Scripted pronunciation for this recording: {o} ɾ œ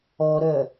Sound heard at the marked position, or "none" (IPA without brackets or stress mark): ɔ